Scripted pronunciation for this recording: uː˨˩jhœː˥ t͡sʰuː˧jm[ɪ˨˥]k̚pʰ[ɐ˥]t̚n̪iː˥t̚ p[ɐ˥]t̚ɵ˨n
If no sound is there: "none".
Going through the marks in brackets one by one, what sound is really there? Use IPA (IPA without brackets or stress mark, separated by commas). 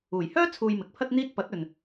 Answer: ɪ˨˥, ɐ˥, ɐ˨˥